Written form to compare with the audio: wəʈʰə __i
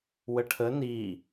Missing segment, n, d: n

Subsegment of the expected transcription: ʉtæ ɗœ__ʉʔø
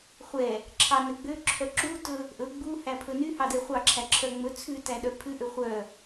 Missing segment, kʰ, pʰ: pʰ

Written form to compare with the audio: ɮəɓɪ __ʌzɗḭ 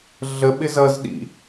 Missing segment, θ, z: z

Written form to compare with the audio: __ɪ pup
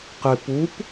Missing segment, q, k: q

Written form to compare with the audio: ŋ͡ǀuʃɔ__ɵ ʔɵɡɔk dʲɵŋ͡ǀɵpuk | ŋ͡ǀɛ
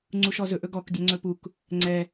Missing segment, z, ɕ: z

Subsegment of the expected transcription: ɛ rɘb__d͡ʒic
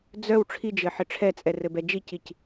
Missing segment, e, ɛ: ɛ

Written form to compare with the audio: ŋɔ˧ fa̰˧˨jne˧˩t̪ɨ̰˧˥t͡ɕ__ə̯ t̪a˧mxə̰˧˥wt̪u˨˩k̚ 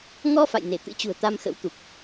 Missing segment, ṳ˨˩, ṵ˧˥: ṳ˨˩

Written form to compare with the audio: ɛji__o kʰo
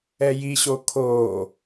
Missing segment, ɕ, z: ɕ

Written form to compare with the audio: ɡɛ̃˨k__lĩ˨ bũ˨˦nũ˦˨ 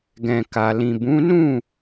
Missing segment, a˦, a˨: a˨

